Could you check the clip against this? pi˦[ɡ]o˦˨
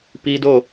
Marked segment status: incorrect: d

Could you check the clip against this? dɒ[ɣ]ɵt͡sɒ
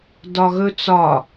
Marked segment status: correct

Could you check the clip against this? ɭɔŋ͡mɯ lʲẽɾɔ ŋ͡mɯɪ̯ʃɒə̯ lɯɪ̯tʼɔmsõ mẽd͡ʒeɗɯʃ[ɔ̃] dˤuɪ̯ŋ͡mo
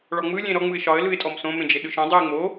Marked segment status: incorrect: õ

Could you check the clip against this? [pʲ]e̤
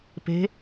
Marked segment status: incorrect: p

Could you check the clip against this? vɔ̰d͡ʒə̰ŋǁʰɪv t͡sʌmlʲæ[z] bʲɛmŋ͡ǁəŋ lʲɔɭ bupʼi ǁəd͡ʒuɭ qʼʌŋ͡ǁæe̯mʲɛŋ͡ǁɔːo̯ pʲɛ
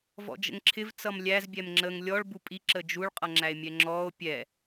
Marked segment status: correct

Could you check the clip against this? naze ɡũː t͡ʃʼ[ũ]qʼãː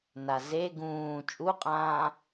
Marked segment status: incorrect: u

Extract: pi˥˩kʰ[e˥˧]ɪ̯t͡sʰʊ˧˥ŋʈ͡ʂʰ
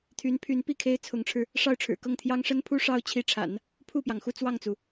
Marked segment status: incorrect: e˥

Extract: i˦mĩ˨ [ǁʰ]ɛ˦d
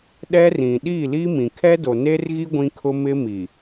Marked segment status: incorrect: kʰ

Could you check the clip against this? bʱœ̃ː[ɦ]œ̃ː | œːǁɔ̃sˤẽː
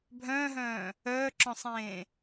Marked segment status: correct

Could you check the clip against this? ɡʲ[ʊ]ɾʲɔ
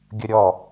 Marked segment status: incorrect: ə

